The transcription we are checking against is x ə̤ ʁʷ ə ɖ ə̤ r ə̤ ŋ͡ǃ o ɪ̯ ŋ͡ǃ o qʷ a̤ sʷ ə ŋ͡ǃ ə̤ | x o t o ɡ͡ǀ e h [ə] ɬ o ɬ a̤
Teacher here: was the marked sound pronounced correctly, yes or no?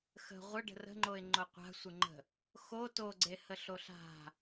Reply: yes